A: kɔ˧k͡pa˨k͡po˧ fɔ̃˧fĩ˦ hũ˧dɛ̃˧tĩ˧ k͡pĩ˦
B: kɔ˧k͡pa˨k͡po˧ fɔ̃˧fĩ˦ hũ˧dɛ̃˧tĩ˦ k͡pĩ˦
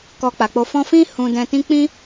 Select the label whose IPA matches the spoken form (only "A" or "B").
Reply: B